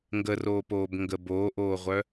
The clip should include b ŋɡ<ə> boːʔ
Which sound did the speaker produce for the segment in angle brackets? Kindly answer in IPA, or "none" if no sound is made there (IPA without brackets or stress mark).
ə